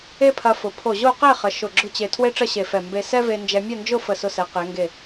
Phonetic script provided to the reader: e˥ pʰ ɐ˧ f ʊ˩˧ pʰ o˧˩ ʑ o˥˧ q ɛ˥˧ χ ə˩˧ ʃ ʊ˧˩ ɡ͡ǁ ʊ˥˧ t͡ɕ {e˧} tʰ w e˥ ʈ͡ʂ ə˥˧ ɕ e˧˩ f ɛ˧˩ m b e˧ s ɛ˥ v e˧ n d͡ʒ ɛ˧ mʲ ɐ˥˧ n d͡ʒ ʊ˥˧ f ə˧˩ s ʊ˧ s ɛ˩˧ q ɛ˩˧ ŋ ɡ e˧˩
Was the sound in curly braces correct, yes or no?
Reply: yes